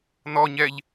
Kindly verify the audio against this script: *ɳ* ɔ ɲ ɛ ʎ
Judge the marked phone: incorrect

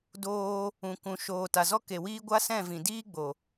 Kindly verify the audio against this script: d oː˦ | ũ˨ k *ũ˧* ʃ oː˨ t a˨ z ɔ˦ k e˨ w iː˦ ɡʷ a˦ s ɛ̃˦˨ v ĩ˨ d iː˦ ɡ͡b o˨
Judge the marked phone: incorrect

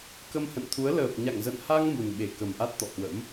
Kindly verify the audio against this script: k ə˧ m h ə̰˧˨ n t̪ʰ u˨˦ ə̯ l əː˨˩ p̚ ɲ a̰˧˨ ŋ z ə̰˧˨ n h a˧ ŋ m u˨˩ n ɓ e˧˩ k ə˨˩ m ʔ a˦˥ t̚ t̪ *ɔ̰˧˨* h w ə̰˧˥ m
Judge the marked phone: correct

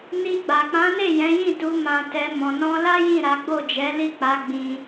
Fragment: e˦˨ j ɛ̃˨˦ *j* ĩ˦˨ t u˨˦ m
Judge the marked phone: correct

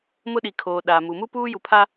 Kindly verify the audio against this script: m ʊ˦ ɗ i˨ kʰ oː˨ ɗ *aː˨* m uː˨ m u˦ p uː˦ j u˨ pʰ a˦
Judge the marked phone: correct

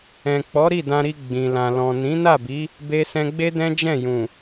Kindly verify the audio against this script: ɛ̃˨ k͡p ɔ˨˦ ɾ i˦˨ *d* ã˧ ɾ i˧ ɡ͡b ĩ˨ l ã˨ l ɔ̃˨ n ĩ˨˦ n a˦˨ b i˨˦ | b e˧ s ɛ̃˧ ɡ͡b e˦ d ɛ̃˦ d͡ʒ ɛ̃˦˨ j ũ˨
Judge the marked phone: correct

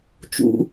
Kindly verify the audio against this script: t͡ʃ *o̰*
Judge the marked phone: incorrect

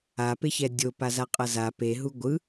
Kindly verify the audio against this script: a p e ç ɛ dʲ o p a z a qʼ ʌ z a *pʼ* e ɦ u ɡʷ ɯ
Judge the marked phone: incorrect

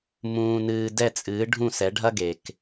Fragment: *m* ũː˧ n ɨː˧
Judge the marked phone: correct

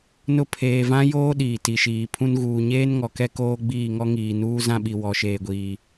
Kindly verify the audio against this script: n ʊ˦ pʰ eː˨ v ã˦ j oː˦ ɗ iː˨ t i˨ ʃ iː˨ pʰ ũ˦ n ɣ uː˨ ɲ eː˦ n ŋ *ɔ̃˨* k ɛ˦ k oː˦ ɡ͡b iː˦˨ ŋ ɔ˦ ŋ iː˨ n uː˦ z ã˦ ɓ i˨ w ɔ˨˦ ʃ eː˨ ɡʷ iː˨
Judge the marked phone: incorrect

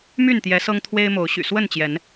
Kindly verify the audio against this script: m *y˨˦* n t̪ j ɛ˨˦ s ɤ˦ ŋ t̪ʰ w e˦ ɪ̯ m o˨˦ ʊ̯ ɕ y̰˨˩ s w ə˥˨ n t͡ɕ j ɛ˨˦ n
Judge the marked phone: incorrect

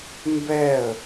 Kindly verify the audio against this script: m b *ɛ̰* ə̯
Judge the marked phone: incorrect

